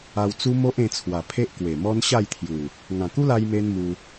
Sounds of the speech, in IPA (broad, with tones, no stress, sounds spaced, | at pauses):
a˧ w t͡s u˦ m o˦ ʔ ẽ˧ t͡sʰ w a˨˩ pʰ e˦ ʔ k w e˨˩ m ɔ˦ n ɕ a˥˧ j t̪ʰ j u˨˩ | ŋ ã˨˩ k u˦ l a˧ j m e˦ n m u˧